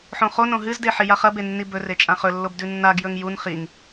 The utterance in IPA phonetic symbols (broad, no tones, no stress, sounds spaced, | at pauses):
ħ õ χ o n õ ɦ ɨ z d e ħ i j a χ ɐ b e nː i b ɵ r e t͡ʃʼ ã χ ɵ lː o b d ʉ nː a ɡ j ɵ ŋ j u n χ i ŋ